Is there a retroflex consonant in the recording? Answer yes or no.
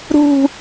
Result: no